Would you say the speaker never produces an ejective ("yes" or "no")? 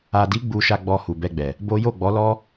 yes